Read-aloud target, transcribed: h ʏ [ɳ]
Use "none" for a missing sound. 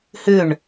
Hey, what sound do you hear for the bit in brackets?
ɳ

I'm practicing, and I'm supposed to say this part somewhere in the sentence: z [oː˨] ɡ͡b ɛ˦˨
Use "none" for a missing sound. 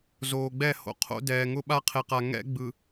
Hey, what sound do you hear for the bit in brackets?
oː˨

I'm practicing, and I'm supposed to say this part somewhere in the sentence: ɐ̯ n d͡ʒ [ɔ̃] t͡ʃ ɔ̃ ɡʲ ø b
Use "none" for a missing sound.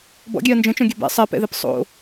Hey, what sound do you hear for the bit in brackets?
ə̃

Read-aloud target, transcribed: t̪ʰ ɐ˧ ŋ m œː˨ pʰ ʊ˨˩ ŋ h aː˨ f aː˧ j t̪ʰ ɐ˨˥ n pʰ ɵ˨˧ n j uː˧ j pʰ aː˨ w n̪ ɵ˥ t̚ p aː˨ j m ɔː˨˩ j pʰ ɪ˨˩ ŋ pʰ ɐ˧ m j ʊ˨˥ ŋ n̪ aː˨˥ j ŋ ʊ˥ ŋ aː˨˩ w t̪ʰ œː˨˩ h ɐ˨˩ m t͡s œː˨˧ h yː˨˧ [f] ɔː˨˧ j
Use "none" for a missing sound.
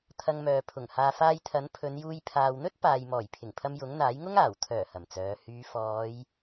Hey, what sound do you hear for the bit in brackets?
f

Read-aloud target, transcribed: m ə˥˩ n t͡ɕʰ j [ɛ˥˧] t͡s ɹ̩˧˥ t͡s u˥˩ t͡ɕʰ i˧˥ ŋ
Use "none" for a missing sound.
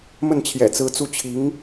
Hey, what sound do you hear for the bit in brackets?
ɛ̰˨˩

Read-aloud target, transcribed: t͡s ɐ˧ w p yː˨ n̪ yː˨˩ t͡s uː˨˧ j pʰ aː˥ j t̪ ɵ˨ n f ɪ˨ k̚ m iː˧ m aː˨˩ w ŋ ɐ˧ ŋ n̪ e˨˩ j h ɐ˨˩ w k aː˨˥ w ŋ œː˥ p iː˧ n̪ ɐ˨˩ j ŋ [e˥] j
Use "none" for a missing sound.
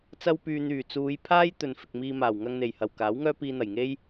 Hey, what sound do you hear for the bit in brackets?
e˥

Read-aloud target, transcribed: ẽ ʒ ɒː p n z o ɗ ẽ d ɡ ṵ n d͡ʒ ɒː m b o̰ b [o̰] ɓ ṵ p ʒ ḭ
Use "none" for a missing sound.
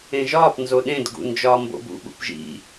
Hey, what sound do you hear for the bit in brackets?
ṵ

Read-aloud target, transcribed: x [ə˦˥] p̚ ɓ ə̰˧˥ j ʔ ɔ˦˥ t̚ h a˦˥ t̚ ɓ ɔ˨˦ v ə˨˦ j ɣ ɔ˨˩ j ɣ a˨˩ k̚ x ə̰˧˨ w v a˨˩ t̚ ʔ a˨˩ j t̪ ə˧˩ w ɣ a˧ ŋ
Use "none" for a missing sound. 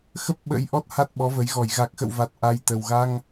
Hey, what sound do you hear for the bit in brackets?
ə˦˥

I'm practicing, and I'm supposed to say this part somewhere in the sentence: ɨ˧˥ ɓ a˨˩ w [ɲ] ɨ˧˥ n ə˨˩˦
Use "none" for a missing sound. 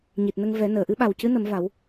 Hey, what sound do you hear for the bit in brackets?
c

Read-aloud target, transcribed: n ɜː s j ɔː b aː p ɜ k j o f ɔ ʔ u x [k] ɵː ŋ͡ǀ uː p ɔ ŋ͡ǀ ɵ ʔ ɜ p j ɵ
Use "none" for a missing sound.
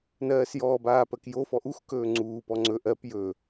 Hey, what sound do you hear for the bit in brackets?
k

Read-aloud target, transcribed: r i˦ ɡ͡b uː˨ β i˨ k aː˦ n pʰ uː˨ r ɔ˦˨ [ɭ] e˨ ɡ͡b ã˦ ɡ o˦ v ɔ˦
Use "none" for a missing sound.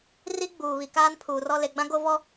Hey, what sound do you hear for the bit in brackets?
l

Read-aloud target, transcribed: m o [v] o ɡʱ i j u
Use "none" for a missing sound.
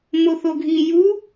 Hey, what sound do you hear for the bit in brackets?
θ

